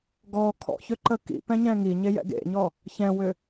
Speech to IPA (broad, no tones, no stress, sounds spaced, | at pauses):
ɡ ɔ kʰ ɔ̰ ç ø ǃ ə k ḭ p ɛ̃ ɲ ɛ̃ ŋ i ɲ e j ɛ̰ ɡ ḛ ɲ ɔ | ç ɛ̃ w ʏ